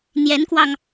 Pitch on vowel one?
rising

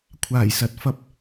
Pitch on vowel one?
low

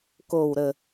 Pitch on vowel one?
low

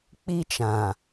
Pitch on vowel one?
high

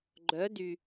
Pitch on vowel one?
rising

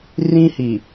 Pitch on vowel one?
high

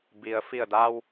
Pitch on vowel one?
low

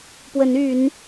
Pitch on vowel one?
rising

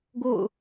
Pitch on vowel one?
falling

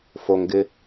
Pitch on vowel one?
low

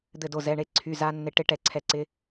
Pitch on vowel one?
falling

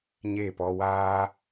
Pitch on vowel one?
falling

